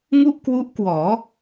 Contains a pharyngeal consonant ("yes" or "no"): no